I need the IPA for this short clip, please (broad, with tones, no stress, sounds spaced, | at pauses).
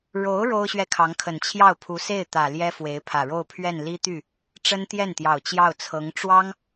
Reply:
ɻ o˧˥ ʊ̯ ɻ o˥ ʊ̯ ɕ ɥ ɛ˥˩ kʰ ɑ˧˥ ŋ kʰ ə˨˩ n t͡ɕʰ j ɑ˥˩ ʊ̯ pʰ u˧˥ s e˥˩ ɪ̯ t̪ ä˨˩ l j ɛ˥ f w e˧˥ ɪ̯ pʰ ä˨˩ ɻ o˥˧ ʊ̯ pʰ ɥ ɛ˥˩ n l i˥ t̪ y˥˩ | ʈ͡ʂ ə˥ n t̪ j ɛ˥˩ n t̪ j ɑ˨˩ ʊ̯ t͡ɕ j ɑ˥˩ ʊ̯ t͡sʰ ɤ˧˥ ŋ ʈ͡ʂ w ɑ˥ ŋ